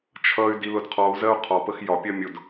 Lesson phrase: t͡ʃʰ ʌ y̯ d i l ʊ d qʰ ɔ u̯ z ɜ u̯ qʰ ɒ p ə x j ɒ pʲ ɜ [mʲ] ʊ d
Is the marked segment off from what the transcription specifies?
no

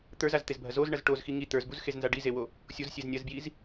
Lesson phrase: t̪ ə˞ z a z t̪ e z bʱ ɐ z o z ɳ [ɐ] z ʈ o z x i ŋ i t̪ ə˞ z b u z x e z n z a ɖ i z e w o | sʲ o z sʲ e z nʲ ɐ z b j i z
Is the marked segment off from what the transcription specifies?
no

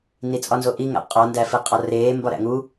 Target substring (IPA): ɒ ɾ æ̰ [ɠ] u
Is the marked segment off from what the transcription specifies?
yes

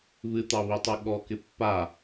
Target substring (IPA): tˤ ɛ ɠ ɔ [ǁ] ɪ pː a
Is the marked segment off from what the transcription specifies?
yes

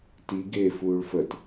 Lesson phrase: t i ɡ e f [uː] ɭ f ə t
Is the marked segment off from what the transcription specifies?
no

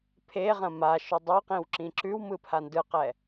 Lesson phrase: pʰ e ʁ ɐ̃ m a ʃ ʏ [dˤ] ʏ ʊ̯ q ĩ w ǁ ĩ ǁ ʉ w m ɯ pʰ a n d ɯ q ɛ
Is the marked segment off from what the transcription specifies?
no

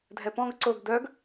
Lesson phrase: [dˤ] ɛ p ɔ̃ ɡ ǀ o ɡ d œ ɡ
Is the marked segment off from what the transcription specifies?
yes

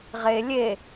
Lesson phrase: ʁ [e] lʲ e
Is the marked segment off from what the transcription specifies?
no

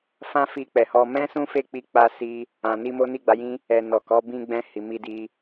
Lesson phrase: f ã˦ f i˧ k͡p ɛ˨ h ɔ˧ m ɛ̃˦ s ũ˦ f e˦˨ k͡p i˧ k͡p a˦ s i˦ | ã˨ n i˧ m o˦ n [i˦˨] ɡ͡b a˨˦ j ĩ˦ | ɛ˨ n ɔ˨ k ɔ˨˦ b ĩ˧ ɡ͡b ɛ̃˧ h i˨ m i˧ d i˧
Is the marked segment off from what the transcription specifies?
no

